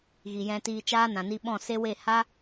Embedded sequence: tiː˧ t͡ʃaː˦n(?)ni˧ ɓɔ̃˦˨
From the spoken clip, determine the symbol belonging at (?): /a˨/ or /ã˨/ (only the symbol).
ã˨